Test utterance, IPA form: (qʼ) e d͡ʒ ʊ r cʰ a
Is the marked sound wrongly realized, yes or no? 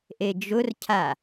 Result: yes